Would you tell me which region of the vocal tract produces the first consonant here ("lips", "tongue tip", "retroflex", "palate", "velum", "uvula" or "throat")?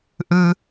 throat